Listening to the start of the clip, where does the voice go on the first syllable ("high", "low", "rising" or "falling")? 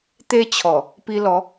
high